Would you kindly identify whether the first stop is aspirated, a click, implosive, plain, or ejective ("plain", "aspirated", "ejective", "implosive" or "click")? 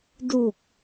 plain